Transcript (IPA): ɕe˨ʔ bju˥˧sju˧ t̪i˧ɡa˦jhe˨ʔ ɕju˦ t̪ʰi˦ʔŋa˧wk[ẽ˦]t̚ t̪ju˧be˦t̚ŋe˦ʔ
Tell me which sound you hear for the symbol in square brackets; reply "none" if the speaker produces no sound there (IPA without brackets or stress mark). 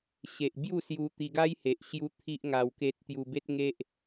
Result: e˦